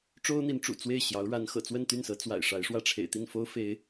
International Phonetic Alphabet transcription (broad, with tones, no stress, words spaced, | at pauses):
ʈ͡ʂo˥ʊ̯n̪i˧˥nʈ͡ʂṵ˨˩ t͡swe˥˩ɪ̯ɕjɑ˧˥ʊ̯ɻa˧˥n xɤ̰˨˩t͡swə˥˧nt̪y˥˩nsɤ˧˥ t͡swa̰˨˩ɪ̯ʂa˧˥ɪ̯ʂwä˥˩ ʈ͡ʂʰḛ˨˩ɪ̯t̪i˥˩nfo˥ʊ̯fe˧˥ɪ̯